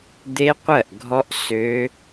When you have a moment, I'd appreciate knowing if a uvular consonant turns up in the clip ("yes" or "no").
yes